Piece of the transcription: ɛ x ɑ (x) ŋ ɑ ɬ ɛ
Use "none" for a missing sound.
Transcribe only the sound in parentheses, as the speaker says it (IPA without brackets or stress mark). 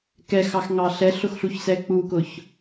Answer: x